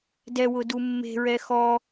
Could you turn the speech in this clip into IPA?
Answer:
d ɛ w ʊ d u mː e̤ ɹ ɛ x ɔ

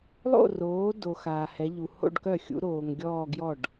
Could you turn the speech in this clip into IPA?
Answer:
lˠ o̰˥˧ r oː˨˦ d o˨ x aː˨ h ɛ˨˦ ʎ u˨ h o̰˥˧ ɖ k œ˥˩ xʲ ṵ˨˦ ɾ oː˨ ŋ ɡʲ ɔː˥˧ ɡ j ɔ˥˩ ɖ

